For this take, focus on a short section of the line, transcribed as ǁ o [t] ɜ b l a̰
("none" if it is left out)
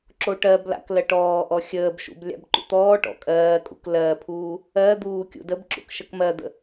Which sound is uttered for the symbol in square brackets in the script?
ʈ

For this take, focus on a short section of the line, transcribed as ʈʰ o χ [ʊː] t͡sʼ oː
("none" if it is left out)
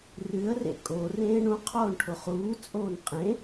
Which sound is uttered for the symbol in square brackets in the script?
uː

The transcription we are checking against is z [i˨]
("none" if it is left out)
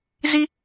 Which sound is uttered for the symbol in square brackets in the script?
i˦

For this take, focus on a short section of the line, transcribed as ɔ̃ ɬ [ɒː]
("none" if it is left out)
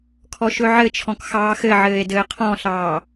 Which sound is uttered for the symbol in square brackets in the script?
ɑː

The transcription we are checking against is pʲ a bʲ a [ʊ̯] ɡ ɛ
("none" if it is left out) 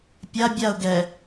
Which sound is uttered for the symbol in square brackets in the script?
ʊ̯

